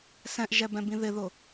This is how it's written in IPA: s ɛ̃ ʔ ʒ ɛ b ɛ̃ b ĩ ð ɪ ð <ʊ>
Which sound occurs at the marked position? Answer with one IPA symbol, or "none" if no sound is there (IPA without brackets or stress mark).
ʊ